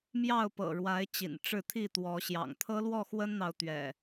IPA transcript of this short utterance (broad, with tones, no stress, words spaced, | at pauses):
mjɑ˥˨ʊ̯pɤ̰˨˩ɻwa˨˦ɪ̯ t͡ɕḭ˨˩nʈ͡ʂɻ̩˥˨ t̪ʰi˥˨ t̪wɔ˨˦ɕjɑ̰˨˩ŋ t̪ʰɤ˦lwɔ˥˨xwə˦nn̪ɑ˨ʊ̯ t̪ɥɛ̰˨˩